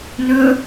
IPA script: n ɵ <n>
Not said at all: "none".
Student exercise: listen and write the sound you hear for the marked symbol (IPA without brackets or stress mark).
none